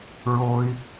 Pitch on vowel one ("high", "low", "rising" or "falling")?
low